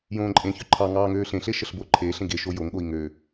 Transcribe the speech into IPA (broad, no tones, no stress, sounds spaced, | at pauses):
j õː ǃʼ ẽ ç ø ǃʰ ɑ ŋ ɑː ŋ øː ɬ ẽ ɬ e ʃ ə ɬ b o ǃʰ eː ɬ ẽ ɡ e ʃ o j o ŋ ɠ o i̯ ŋ ø